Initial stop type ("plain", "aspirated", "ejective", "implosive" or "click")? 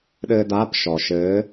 implosive